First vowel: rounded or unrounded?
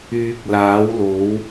rounded